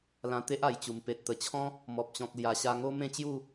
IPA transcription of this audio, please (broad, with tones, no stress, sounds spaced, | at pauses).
l ã˧ t̪ e˦ ʔ a˨˩ j t͡ɕ u˨˩ m p e˨ t̚ t̪ ə˨˩ t͡ɕʰ ɔ̃˦ | m ɔ˨ p̚ t͡ɕ ɔ̃˨ k̚ l j a˨˩ ɕ a˧ ŋ o˦ m ẽ˥˧ t͡ɕ j u˥˧